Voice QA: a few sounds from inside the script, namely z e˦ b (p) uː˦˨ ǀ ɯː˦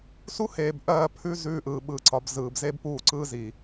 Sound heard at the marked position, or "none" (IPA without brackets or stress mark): p